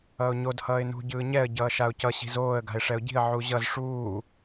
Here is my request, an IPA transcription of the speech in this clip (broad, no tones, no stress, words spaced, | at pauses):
ʌːʊ̯ɲod hʌːɪ̯nṳ ɟɯːɲɛə̯ ɟʌːʃaʊ̯cʌ ɕi̤zoːə̯ ɡa̤ɪ̯ʂɛʊ̯ɟi̤ə̯ ʕuʑʌz ʂuː